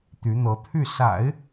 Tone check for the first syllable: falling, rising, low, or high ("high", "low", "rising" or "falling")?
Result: rising